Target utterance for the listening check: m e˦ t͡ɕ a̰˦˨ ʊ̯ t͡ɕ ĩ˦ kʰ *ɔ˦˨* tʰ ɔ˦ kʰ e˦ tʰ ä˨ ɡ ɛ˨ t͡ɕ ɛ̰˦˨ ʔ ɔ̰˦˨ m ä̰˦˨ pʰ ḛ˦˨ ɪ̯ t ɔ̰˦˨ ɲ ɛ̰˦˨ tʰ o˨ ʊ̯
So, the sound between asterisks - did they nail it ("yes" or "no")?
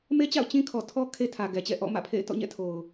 no